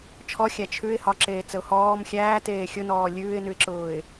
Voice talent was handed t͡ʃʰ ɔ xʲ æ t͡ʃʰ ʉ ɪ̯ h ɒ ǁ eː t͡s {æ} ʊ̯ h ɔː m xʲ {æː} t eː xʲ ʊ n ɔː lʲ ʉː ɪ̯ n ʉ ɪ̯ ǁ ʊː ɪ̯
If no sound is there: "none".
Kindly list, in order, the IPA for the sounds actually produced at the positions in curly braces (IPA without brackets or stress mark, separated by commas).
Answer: ə, æː